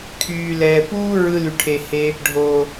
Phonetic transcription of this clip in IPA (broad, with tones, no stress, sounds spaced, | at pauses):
kʰ yː˨ l ɛː˨ p uː˦ ɹ ɯ˧ l y˨ ʈʰ e˨ h e˧ | ɖʱ oː˨